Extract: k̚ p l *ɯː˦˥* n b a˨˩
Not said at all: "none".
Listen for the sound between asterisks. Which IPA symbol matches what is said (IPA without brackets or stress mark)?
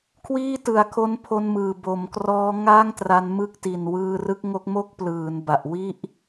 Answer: ɯː˩˦